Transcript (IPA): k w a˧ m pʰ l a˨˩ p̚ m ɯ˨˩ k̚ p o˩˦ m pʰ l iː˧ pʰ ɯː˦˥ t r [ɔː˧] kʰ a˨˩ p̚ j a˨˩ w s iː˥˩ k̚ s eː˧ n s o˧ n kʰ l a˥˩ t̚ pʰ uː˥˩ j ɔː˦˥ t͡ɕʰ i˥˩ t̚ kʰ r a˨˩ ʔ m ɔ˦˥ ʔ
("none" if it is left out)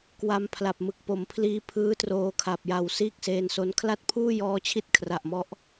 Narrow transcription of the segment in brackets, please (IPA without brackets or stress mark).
oː˧